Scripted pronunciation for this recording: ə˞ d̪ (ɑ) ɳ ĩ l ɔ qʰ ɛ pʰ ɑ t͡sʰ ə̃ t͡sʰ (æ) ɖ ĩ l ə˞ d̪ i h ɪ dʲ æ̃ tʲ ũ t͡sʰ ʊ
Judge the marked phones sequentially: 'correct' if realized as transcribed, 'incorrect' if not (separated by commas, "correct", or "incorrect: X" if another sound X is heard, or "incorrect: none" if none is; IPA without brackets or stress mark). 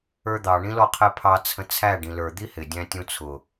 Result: correct, correct